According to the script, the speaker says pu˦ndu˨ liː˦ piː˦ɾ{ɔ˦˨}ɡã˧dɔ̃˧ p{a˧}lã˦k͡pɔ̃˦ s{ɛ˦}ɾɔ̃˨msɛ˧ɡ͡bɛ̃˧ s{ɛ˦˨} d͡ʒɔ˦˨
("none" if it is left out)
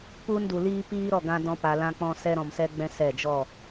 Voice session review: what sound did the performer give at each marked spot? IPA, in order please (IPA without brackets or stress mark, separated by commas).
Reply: ɔ˦˨, a˧, ɛ˧, ɛ˦˨